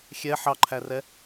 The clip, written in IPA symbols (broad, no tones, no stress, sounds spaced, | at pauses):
xʲ ɛ ħ ɑ ǃʰ æ r ɛ